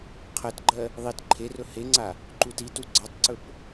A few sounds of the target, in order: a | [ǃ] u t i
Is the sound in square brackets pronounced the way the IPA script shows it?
yes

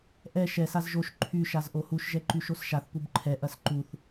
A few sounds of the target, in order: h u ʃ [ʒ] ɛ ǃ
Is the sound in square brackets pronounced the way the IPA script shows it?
yes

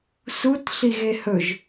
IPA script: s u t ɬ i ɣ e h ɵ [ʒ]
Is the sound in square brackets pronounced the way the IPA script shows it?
yes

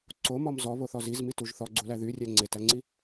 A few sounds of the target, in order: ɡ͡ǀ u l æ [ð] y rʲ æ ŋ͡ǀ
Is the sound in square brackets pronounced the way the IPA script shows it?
yes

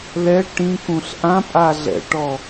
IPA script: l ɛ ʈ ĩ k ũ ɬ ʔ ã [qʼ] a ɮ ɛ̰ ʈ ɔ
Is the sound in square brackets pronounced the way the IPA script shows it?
no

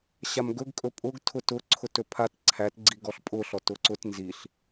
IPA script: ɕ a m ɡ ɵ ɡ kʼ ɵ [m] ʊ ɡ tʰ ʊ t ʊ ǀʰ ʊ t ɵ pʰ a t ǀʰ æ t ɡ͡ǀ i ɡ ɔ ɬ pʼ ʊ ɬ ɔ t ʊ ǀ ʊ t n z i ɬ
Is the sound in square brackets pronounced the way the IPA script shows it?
no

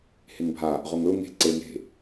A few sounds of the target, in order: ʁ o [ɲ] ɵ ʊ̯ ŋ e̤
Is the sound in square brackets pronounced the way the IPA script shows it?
no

